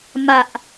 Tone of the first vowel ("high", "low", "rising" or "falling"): low